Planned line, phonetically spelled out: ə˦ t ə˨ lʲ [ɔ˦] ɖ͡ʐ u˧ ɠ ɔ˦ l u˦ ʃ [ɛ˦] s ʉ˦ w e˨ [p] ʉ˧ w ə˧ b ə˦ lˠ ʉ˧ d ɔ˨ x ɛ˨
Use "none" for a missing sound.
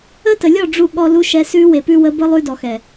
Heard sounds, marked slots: ɔ˦˨, ɛ˧, p

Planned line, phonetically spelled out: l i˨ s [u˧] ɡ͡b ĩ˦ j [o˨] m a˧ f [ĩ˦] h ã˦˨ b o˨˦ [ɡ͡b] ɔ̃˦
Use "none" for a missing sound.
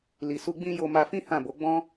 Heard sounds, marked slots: u˧, o˧, ĩ˦, ɡ͡b

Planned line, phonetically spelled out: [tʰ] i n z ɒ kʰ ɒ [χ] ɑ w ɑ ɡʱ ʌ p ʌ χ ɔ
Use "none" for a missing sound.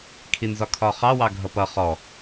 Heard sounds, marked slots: kʰ, χ

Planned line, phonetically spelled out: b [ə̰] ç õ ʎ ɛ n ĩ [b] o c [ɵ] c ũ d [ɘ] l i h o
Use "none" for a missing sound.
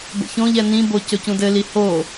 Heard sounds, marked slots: ə̰, b, ɵ, ɘ

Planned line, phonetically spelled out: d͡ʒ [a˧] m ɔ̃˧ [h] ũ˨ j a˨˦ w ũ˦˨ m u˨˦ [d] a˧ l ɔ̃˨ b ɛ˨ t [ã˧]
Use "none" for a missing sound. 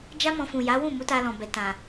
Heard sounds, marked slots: a˦, f, t, ã˨

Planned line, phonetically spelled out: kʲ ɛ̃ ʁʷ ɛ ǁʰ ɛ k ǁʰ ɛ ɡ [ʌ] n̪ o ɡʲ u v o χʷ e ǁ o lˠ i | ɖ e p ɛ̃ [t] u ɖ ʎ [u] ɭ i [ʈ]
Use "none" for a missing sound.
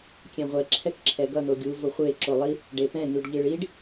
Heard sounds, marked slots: ʌ, n̪, ɯ, ɖ

